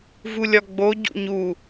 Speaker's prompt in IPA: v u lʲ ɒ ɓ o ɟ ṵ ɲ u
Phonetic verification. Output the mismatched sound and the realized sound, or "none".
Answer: ɓ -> ɡ͡b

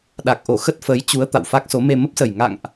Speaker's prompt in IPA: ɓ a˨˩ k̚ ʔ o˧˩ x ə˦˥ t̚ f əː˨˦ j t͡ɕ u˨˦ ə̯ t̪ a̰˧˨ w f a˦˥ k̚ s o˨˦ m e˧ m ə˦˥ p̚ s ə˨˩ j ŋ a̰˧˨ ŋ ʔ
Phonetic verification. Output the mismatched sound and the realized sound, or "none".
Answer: ɓ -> ɗ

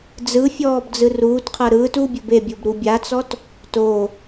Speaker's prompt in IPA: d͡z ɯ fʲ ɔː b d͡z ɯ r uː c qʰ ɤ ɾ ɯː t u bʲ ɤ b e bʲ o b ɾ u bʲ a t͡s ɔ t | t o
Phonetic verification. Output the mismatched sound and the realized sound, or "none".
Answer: c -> t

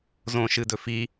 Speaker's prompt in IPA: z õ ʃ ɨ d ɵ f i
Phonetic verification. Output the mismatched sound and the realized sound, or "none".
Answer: none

